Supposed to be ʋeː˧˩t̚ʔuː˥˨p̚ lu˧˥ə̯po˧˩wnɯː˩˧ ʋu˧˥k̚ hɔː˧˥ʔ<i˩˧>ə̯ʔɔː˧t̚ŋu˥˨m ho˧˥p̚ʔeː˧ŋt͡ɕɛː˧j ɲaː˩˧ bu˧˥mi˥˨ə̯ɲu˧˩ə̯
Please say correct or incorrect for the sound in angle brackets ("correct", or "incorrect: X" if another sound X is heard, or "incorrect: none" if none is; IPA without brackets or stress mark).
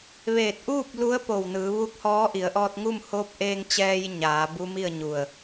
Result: correct